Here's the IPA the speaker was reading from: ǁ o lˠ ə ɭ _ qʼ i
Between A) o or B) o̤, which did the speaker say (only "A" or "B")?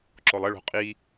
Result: B